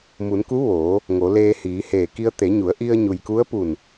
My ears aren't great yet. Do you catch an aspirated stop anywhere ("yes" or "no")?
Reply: no